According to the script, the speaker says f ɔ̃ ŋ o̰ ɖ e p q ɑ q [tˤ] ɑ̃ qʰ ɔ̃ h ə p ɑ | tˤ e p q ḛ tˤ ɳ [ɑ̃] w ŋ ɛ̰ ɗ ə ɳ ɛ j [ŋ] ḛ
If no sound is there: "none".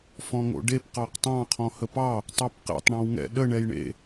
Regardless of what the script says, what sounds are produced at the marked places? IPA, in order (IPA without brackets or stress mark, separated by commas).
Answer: tˤ, ɔ̃, ɳ